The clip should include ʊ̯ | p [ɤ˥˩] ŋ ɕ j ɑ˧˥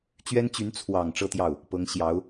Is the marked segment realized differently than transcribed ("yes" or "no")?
yes